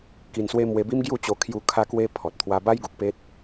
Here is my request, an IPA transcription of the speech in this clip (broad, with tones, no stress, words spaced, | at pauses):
ki˧nswe˦ mwe˧bi˦mɡju˥˧t͡ɕo˧ kʰju˧ kʰa˦kwe˦pʰɔ˨t̚ t̪ʰwa˧ba˦jɡu˨k̚ pe˦t̚